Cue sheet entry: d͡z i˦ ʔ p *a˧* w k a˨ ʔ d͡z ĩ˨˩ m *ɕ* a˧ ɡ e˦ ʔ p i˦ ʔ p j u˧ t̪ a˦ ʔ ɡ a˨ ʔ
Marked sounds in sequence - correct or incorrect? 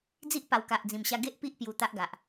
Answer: incorrect, correct

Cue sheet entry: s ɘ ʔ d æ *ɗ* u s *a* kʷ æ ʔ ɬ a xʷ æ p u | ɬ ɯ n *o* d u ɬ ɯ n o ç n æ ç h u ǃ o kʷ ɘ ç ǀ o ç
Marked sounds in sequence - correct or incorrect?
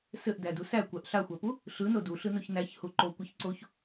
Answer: incorrect, incorrect, correct

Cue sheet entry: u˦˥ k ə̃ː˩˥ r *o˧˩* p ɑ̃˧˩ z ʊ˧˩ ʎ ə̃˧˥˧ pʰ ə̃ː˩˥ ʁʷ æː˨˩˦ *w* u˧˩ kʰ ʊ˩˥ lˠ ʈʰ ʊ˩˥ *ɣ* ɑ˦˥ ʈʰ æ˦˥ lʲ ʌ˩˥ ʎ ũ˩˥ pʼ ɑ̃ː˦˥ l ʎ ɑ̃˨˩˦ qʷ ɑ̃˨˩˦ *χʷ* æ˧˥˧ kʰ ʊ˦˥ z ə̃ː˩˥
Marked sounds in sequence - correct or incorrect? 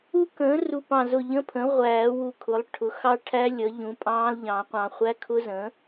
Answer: incorrect, correct, incorrect, correct

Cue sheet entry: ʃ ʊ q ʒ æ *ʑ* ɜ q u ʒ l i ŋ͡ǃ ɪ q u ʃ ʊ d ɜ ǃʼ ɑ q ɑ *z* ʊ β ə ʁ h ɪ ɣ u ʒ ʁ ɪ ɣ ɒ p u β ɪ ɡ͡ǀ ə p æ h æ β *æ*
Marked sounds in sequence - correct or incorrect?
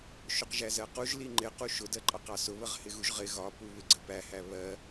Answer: incorrect, incorrect, incorrect

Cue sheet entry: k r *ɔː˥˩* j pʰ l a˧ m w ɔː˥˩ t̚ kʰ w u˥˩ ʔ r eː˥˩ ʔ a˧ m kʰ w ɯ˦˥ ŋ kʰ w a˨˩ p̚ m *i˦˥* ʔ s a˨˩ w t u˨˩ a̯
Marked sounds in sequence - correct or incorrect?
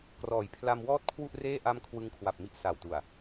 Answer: incorrect, correct

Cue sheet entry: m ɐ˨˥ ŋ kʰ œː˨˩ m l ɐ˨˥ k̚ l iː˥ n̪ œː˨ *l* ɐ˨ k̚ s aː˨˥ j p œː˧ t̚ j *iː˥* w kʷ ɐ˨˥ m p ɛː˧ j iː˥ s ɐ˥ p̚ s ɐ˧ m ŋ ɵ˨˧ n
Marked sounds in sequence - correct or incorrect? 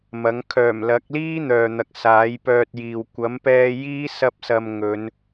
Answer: incorrect, incorrect

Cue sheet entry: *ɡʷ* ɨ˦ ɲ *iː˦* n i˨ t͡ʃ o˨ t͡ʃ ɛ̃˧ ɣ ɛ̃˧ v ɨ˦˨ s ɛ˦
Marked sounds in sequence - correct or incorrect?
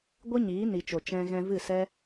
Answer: correct, incorrect

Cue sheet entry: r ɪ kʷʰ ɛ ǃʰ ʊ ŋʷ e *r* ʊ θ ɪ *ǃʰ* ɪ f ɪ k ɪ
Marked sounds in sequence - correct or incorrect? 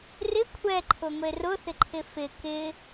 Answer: correct, correct

